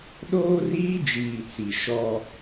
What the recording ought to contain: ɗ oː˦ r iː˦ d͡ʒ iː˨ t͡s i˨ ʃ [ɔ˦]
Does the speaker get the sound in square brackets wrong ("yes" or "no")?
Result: no